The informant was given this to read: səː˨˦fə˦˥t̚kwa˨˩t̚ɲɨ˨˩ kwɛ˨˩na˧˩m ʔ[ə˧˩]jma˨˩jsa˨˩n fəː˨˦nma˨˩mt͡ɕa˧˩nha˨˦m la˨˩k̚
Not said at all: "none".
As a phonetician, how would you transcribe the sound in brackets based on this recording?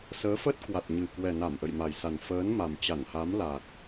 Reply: ə̰˧˨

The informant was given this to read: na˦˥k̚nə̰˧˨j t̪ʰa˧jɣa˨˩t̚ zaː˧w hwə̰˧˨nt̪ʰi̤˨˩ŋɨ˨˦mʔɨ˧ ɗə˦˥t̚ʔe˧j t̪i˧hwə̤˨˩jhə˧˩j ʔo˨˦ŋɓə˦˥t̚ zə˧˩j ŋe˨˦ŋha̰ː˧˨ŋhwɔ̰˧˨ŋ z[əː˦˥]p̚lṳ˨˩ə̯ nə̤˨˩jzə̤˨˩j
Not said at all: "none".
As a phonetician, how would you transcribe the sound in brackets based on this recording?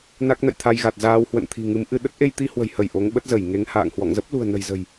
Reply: ə˦˥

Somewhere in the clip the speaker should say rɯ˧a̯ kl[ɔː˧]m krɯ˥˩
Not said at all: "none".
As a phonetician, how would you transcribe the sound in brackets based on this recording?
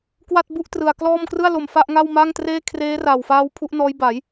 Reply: ɔː˥˩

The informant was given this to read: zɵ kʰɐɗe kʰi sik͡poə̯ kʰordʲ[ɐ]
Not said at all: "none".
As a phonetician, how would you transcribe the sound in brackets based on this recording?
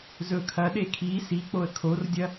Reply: ɐ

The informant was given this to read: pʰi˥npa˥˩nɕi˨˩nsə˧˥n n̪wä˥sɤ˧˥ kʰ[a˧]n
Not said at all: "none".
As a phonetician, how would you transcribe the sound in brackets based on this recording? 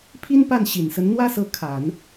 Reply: a˨˩˦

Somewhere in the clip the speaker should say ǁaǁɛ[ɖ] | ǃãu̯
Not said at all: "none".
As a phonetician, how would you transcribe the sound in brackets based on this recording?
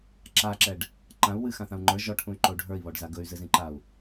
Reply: ɖ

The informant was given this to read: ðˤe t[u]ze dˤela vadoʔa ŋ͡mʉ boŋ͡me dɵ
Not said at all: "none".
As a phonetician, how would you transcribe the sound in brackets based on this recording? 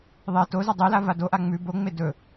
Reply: o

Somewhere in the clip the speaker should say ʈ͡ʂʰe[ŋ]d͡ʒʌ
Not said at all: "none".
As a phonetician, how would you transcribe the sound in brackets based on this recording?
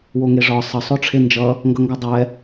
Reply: n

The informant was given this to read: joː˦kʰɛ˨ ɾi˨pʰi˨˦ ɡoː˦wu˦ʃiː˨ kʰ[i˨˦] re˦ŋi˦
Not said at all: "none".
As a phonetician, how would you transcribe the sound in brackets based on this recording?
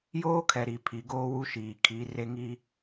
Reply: i˨˦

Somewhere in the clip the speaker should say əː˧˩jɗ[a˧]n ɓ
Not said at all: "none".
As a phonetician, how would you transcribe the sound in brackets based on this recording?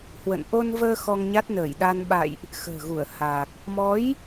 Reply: a˧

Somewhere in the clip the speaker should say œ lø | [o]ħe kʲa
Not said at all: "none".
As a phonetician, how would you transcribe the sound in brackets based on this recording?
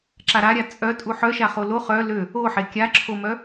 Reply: o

